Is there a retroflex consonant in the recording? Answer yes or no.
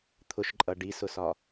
yes